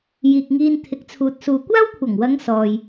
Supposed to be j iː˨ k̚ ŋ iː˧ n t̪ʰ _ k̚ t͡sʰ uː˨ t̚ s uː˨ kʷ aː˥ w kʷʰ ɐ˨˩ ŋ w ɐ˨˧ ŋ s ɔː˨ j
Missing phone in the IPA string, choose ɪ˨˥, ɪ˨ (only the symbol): ɪ˨˥